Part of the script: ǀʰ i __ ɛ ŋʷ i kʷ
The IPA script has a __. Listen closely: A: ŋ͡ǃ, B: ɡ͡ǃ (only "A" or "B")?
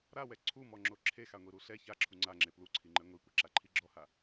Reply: A